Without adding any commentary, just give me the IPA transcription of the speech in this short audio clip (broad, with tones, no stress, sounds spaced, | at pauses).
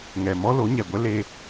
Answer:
ŋ ɛ˨ m ɔ˦ l o˨˦ ɲ ɛ˨ ɡʷ ɛ˦ l e˦